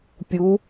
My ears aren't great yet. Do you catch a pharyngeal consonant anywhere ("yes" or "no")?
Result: no